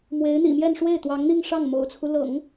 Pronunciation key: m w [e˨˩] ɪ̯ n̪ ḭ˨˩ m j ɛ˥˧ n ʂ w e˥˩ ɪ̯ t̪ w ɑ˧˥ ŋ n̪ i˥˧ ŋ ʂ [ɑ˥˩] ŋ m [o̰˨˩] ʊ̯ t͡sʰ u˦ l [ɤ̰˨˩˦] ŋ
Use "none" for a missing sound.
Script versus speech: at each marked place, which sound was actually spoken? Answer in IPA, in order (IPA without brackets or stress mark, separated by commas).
e˧˥, ɑ˥˩, o̰˨˩, ɤ̰˨˩˦